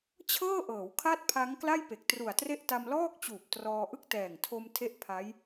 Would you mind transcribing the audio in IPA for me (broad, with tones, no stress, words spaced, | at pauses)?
t͡ɕʰɤː˥˩ʔɤː˩˦w kʰa˥˩t̚pʰa˦˥ŋ kla˥˩jpe˨˩k̚tru˨˩a̯tre˥˩ʔ ta˧mlɔː˥˩k̚t͡ɕuː˨˩p̚ trɔː˧ʔɯ˥˩k̚ tɛː˨˩ŋtʰo˧m tʰe˥˩ʔpʰa˦˥j